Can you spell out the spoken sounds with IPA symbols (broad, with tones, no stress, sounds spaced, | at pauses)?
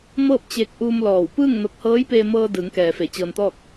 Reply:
m ɤː˥˨ p̚ t͡ɕ eː˧ k̚ ʔ uː˧ m l ɔː˧˩ w p ɯː˥˨ ŋ n o˧ k̚ h ɤː˧˥ j p eː˧ m ɤː˧ d ɯː˩˧ ŋ k ɛː˩ f e˧˩ t͡ɕ ɤː˧ n t̪ ɔː˥˨ k̚